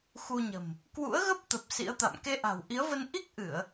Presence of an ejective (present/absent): absent